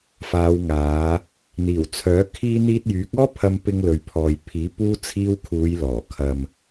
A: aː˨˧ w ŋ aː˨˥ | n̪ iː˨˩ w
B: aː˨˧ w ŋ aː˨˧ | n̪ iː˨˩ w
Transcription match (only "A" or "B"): B